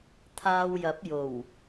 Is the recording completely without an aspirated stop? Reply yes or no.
no